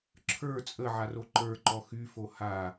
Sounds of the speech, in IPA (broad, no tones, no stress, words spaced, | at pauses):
ǁʰə˞ t͡sʼə ʕaroǃə˞ǃɔ xyfo ha